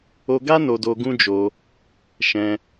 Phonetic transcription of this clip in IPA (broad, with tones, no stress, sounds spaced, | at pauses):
o˧ ɡ a˦ n o˧ d o˧ ɡ ũ˦ d͡ʒ o˧ | ʃ ɛ̃˧